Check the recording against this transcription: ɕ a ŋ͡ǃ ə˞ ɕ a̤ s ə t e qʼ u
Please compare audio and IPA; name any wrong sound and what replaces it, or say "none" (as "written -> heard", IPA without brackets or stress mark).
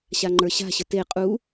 s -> ɕ